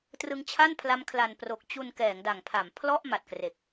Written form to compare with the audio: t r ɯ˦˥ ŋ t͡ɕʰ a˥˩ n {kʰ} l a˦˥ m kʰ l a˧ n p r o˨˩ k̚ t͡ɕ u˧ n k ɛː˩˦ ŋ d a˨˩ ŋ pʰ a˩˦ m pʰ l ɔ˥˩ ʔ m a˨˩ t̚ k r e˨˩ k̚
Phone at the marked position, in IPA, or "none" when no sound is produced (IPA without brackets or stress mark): pʰ